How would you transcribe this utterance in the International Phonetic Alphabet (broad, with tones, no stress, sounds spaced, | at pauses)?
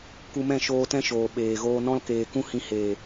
k u˧ m ɛ̃˦˨ ʃ oː˧ t ɛ̃˦ ʃ oː˨ ɓ eː˨ ɣ oː˧ n ɔ̃˧ l k eː˨ k ũ˦ h ĩ˧ h eː˨